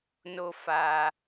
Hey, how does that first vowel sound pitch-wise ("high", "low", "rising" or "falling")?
high